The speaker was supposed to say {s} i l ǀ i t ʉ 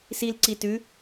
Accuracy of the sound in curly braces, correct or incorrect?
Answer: correct